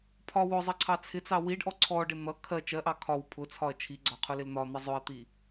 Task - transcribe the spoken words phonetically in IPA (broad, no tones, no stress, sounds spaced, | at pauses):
pʰ ɒ w ʊ zˤ ʌ ǀʰ ɑ t͡sʰ ɪ t͡s ɑ w i ɖ ʔ ɔ ǀʰ ɔ ɖ ɪ n̪ ʌ kʰ ɜ t͡ʃ ɜ ʔ ɑ kʰ ɒ w pʰ ʊ t͡sʰ ɒ ɐ̯ t͡ʃʰ i ɡ͡ǀ ɒ qʰ ʊ l ɪ l n̪ ɒ n̪ ʌ zˤ ʊ ɐ̯ t̪ i